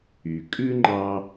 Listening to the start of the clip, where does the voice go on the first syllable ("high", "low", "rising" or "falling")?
low